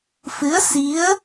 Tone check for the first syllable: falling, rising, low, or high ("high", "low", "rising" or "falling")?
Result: rising